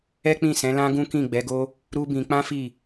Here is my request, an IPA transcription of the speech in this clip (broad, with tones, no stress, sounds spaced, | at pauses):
ɛ˦ k͡p ĩ˦˨ s ɛ̃˨˦ l ã˦ ɡ ũ˦ k ĩ˦˨ ɡ͡b ɛ˨˦ ɡ o˦ | ɾ u˦ b ĩ˧ k͡p ã˦ f i˦˨